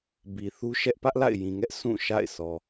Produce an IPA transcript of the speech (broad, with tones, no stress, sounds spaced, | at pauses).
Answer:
b i˨ θ u˦ ʃ ɛ˦ ʔ p ä˦ ʔ l a̰˦˨ ɪ̯ j ĩ˨ ŋ ɛ˦ ʔ s ũ˦˨ ʃ a̰˦˨ ɪ̯ s ɔ˨